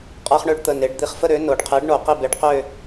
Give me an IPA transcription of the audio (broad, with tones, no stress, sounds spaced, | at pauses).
qʼ a˦ χ ɳ ø˦ ɖ t̪ ə˩˧˩ n e˩˧ ɖ d̪ i˨˥ χ f ə˦ ɾ ø˨˥ n o˩˧ ɖ qʰ e˨˥ ɖ ɳ o˩˧ q i˦˨ b e˨˥ ɖ q ø˦˨